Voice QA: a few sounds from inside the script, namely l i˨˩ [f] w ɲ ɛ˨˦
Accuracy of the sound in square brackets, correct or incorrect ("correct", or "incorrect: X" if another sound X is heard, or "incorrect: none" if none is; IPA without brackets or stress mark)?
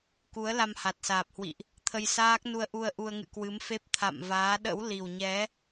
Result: incorrect: none